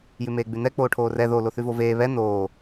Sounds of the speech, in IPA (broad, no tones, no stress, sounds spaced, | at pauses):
j ʉ m eː ɡ͡b ʉ n ɛ k͡p oː ʈʰ oː r ɛ ð o l o θ ʉ v o v eː β ɛ n oː